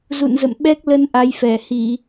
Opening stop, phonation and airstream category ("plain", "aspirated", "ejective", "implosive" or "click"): implosive